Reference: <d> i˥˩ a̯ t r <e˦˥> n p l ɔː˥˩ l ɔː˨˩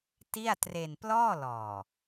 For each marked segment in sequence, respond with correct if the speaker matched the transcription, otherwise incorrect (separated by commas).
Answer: incorrect, incorrect